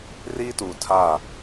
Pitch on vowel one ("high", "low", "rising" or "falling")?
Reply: high